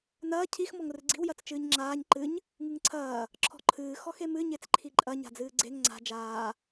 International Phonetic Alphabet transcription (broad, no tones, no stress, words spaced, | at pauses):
nɐː cʰix mɔŋrɨɡ͡ǀi̤w jɐt͡st͡ʃɨːɲŋ͡ǁaːɲ ǃɨɲ | ŋɨŋǀʰɐː | ǁʰɔ̤ǃʰɨː xɔxemɨ ɲet͡sǃʰiǃʼɐ ɲa̤d͡zɨːɡ͡ǀeŋ ŋ͡ǀa̤ d͡ʒaː